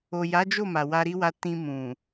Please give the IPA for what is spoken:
o˨ j a˨˦ d͡ʒ o˦˨ m a˨ w a˧ ɾ i˦ w a˧ t ĩ˧ m ũ˨

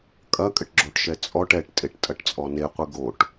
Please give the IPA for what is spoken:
kʼ ɐ kʼ ɘ ʈ ɡ͡ǁ o ʈ ʃ ɛ t͡sʼ ɔ ʈ ɛ ʈ tʼ e ʈ tʼ ɐ ʈ t͡sʼ ɔ n e qʷ ɨ ɡ o ʈ

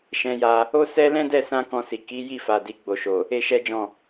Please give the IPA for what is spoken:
ʃ ɛ̃˧ j a˧ | o˦ s ɛ˦ l ɛ̃˦ d ɛ˦˨ s ã˧ k ɔ̃˧ s i˨ k i˨˦ j i˦˨ f a˨ d i˧ ɡ͡b o˨ ʃ o˨ | e˦ ʃ ɛ˦ d͡ʒ ɔ̃˦˨

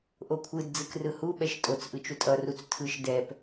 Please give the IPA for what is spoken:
ʔ o kʷʰ ɯ d d͡z ɯ k r ɯ h u ɓ ɛ ʃ tʼ o t͡s ʔ ɯ t͡ʃ u tʼ ʌ r u t͡s tʰ ɯ ʃ d ɛ p

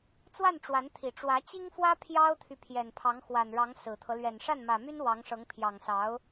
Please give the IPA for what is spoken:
t͡s w a˥˩ n ʈ͡ʂ w a˧˥ n t̪ʰ i˨˩ ʈ͡ʂ w ä˧˥ t͡ɕ i˥ ŋ f w ä˥ pʰ j ɑ˥ ʊ̯ t̪ʰ y˨ pʰ j ɛ˨˩ n pʰ ɑ˧˥ ŋ x w a˨˩ n ɻ ɑ˧˥ ŋ s ɹ̩˨˩ t̪ʰ ɤ˦ l ɥ ɛ˨˩ n ʂ a˥˩ n m ä˨˩ m y˥ n w ɑ˧˥ ŋ ʂ ɤ˧˥ ŋ pʰ j ɑ˨˩ ŋ s ɑ˧˥ ʊ̯

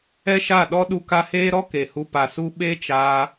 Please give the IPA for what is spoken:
ɛ˦ ʃ a˦˨ ɗ ɔ˦ ɗ u˧ k a˧ h eː˦ ɾ ɔ˦ k e˨ h u˧ p a˨ s u˧ ɓ e˦ t͡ʃ aː˧

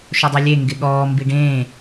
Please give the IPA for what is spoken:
ʃ o dˤ u lʲ e ŋ ɡ ɪ ɠ ɔː m b i ɖ ẽː

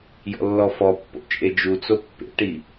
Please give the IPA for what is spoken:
j ɔ̰ lː ɔ f ɔ pː o̰ t͡ʃʼ e d͡ʒ u t͡s o pː ḛ ʈ i

